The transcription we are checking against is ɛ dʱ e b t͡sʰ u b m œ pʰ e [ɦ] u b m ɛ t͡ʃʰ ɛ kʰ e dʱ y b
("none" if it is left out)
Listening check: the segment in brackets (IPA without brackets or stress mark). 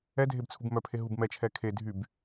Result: ɦ